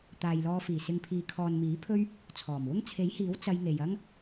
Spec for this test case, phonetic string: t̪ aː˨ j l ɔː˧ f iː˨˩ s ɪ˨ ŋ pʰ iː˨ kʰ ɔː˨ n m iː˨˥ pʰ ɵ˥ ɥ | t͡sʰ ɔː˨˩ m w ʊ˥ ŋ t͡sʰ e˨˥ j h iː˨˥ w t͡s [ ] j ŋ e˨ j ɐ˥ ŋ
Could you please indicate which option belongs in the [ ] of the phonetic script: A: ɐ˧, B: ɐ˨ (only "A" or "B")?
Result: A